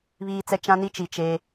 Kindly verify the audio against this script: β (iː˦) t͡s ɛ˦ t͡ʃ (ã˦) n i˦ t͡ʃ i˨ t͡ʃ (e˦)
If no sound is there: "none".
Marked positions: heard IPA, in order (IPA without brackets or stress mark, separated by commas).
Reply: iː˦, ã˦, eː˦